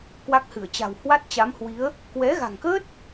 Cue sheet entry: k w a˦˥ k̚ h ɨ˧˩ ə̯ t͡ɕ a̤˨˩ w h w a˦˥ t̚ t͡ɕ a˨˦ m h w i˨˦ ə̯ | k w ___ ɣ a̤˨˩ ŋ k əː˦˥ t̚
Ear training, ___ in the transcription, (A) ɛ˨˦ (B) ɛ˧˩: A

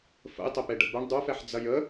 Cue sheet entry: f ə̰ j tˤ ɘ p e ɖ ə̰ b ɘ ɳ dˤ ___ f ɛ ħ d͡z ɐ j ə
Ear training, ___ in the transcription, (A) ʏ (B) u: B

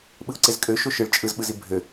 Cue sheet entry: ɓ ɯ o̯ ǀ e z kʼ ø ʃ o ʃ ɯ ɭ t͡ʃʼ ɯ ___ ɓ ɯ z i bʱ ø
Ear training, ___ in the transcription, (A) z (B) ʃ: A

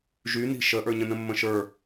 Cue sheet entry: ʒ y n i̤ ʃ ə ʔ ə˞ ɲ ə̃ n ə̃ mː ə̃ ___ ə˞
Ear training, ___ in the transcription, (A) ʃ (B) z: A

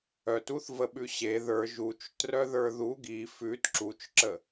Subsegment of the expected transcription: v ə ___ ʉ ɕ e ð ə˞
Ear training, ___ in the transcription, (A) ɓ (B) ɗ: A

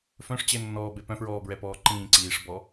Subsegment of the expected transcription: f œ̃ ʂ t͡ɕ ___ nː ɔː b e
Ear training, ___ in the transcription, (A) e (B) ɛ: A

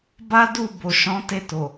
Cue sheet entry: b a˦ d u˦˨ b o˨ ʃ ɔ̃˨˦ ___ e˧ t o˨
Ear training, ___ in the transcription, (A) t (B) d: A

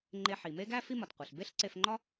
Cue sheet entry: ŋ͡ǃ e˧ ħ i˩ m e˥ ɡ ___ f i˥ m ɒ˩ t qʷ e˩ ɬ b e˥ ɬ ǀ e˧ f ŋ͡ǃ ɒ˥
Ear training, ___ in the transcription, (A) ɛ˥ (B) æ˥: B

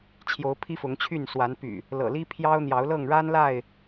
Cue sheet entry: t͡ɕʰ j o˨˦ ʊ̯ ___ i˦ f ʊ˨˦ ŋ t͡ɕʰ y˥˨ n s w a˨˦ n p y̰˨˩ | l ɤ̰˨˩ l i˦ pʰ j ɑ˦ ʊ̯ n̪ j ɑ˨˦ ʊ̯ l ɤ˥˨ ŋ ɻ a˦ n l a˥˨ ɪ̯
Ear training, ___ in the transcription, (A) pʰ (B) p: A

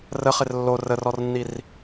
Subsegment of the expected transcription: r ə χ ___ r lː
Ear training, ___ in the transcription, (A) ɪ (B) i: A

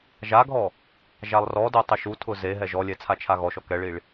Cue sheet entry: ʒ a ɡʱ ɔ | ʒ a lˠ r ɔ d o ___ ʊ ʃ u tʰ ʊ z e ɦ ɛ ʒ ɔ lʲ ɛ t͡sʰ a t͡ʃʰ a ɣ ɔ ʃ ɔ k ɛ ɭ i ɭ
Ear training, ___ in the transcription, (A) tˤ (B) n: A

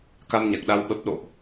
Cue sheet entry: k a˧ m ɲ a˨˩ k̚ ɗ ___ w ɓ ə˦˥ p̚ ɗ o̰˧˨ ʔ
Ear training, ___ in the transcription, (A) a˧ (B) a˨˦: A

